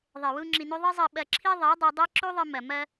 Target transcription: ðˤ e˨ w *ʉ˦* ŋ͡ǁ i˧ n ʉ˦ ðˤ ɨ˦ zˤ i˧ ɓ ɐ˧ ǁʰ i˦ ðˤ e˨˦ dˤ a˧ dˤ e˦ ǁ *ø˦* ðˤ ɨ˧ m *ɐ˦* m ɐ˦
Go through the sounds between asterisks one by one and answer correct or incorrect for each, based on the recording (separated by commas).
incorrect, incorrect, incorrect